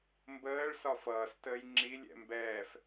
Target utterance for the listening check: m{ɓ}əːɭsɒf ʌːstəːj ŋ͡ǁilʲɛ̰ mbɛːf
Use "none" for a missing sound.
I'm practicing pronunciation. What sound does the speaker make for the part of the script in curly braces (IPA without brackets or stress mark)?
b